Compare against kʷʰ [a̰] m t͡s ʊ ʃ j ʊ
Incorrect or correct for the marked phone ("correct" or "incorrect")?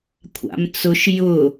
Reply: correct